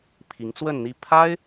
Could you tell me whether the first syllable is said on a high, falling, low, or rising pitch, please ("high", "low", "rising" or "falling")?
rising